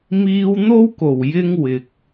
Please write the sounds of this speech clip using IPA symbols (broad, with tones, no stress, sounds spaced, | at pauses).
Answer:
m iː˧ w n̪ o˥ w k o˨˩ w j ɪ˧ ŋ w ɪ˨ k̚